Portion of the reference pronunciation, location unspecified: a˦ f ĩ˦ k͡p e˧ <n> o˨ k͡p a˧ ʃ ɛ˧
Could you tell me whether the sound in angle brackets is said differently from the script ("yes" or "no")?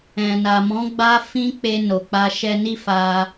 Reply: no